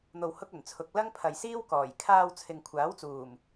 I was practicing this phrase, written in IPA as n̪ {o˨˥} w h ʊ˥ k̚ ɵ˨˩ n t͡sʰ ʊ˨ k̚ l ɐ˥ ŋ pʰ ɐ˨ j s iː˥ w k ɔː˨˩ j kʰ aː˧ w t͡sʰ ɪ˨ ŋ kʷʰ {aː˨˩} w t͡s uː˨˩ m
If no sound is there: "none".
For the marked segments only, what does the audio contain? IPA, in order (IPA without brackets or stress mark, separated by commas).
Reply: o˧, aː˨˥